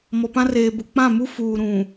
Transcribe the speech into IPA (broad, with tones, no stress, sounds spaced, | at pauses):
m ɔ˨ p ã˦ r eː˨ b ʊ˨ k͡p ã˦˨ m u˦ f uː˨ ɾ ũ˨